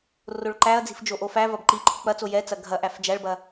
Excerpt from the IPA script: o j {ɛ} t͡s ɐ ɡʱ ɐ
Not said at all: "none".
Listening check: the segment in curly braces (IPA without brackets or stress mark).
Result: ɛ